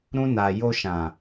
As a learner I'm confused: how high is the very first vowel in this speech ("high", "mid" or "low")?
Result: high